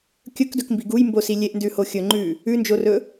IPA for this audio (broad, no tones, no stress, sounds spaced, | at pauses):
kʲ ɵ k d ɵ k m b i ɡ u j m b o s i lʲ e ʔ n d ʉ h o xʲ ɵ ŋ͡ǃ ʉ | ʉ n d͡ʒ o r ɵ